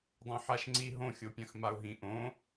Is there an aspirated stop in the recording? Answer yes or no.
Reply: no